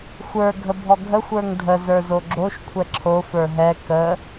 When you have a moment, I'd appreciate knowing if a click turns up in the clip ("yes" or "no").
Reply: yes